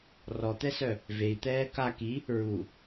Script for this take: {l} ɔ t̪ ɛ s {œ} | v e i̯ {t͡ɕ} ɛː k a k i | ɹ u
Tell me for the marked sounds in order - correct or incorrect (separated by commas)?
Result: incorrect, correct, incorrect